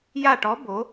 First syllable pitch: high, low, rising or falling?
falling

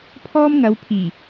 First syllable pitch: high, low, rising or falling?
high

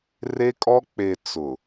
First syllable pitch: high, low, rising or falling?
high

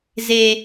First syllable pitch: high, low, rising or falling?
high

